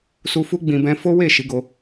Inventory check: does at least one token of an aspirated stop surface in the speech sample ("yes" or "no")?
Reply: no